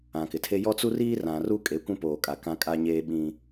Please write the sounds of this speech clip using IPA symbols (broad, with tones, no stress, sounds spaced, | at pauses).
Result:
ã˨ k ɪ˨ tʰ e˦ j ɔ˦ t͡s u˦ r iː˦ r ã˨ r u˦ kʼ e˨˦ kʷ ũ˦ p oː˨ kʼ a˨ k ã˦ kʼ a˦ ɲ eː˦ ɓ ĩ˦